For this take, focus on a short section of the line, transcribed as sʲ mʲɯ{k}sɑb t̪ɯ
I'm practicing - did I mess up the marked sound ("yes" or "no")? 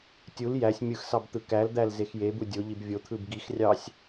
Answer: yes